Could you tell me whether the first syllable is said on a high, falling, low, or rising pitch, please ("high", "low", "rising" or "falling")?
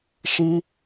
high